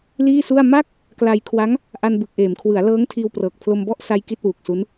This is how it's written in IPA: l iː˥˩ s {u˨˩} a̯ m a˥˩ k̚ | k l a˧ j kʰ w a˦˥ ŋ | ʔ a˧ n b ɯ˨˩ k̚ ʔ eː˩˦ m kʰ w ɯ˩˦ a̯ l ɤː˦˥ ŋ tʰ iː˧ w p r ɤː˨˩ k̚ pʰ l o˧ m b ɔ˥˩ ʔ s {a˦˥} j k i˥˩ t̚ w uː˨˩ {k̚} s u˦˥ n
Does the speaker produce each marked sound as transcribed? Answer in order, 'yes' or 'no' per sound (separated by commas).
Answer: no, no, yes